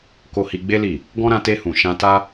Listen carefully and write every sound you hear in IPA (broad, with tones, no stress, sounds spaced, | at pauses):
k o˧ h i˧ ɡ͡b e˦ l i˦˨ | ɡ ɔ̃˦ ɾ ã˧ t e˧ h ũ˨ ʃ ã˧ t a˦